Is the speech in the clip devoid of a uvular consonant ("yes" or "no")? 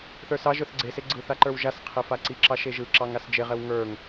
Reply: no